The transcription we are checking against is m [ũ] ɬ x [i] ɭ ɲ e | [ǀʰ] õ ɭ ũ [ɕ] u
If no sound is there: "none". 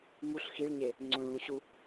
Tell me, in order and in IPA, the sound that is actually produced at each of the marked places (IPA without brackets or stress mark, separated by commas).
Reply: u, i, ŋ͡ǀ, ɕ